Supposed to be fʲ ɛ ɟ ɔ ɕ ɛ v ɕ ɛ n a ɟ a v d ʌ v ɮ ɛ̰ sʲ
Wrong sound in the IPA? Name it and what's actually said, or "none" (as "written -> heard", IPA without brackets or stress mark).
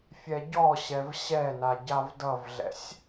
none